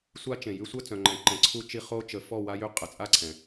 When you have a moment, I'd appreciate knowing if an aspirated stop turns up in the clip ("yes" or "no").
yes